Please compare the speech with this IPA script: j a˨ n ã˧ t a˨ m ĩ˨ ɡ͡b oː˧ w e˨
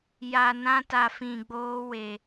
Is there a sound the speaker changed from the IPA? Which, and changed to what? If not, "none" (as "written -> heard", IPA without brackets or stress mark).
m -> f